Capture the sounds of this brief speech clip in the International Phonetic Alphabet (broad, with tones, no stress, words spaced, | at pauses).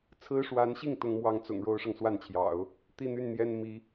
t͡sʰɹ̩˥ʂwa˧˥nɕi˥˩ŋ t̪ʊ˥ŋmwɑ˥ŋt͡sʊ̰˨˩ŋ ɻo˥ʊ̯ʂɤ˨ŋ swa˥˩nt͡ɕʰjɑ̰˨˩˦ʊ̯ | t̪i˥˧n̪y˥˩nn̪jɛ˥n mi˧˥